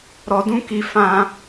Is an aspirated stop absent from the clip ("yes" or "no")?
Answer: yes